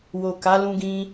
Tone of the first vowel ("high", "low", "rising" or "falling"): low